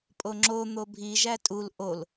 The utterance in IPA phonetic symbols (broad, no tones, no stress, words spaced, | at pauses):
pʼoŋ͡ǁo n̪obʱi ʒætʼul ʔol